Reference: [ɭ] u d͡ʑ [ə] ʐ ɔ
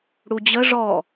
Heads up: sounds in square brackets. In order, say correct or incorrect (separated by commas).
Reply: incorrect, correct